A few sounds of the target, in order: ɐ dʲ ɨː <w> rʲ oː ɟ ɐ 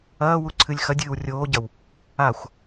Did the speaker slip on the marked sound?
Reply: no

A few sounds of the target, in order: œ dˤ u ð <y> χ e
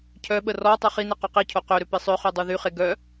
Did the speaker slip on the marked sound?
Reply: no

